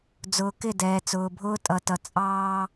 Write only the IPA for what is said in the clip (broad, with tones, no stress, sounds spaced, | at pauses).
d͡z ʊː˨ k ɪ˦˨ d ɛː˨ t͡s ʊː˨ bʱ ʊː˦ tʼ ʌ˨ t ʌ˨ t͡sʼ ɑː˦